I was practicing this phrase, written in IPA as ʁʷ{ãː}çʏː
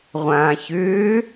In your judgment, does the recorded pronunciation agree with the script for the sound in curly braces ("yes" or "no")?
yes